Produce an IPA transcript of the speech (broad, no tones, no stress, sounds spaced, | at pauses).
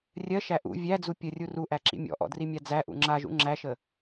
rʲ ɜ ʃ æ ʔ ṵ vʲ æ d͡z u pʲ ə rʲ u r u ʔ æ ǁ ḭ mʲ ɔ̰ ʔ ɔ̰ d r i mʲ a d͡z æ ʔ ṵ ŋ͡ǁ a ʒ ṵ ŋ͡ǁ æ ʃ ə